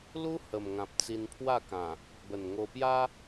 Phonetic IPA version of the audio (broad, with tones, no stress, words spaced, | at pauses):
lu˦ hə˨˩mŋã˨p̚t͡si˧n pʰwa˥˧kã˨˩ | bə˨˩nŋo˧ pja˦